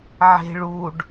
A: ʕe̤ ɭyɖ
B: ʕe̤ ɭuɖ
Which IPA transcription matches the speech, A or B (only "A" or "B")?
B